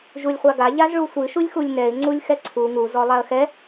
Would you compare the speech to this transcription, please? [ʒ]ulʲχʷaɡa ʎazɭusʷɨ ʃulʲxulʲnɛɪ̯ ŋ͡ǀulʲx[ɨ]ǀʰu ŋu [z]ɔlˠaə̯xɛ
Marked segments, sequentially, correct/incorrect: correct, incorrect, correct

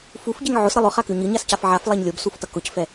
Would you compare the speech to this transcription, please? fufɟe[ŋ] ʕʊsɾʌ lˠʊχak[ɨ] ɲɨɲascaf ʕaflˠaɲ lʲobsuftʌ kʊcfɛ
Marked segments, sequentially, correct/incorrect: correct, incorrect

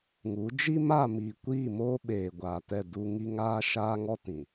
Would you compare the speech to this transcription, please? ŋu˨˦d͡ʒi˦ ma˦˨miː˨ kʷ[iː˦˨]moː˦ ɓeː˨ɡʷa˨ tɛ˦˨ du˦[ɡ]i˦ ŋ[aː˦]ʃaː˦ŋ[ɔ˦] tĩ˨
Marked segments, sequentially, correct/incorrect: correct, incorrect, correct, correct

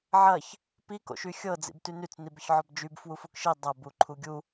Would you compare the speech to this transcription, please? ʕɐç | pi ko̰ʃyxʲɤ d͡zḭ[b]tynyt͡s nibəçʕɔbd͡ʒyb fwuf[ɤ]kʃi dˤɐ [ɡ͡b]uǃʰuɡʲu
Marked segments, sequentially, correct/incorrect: correct, incorrect, incorrect

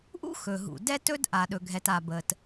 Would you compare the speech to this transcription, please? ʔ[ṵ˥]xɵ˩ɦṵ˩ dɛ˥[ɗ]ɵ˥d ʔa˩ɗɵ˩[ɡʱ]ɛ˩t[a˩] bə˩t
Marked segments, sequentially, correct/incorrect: correct, incorrect, correct, correct

